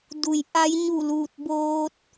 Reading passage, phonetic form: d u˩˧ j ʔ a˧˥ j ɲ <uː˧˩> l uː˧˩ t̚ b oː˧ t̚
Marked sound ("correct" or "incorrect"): incorrect